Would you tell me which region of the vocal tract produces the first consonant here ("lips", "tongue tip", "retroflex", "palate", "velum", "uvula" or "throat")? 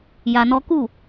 palate